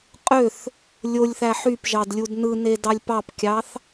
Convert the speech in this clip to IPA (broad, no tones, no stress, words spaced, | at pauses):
qʼøθ | lʲolʲθæ ħyp ʒɑdlʲudnɯne dɑlʲpɑpkʲɑθ